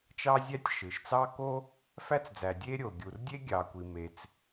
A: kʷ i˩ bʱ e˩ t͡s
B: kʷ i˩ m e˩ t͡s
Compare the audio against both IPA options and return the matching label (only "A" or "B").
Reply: B